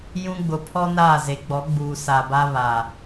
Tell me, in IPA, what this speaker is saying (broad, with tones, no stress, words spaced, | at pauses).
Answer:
jũ˦ɡ͡bʊ˨ pʰɔ˦ naː˦˨ze˨˦ɡ͡bɔ˨˦ ɡ͡buː˨ sa˨ba˦βa˨